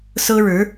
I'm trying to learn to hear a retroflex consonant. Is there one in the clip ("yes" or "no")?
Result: yes